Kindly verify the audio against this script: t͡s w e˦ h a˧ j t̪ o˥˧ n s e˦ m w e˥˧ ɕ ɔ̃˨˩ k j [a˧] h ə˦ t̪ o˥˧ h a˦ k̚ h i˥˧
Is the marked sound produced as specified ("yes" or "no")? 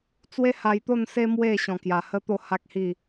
no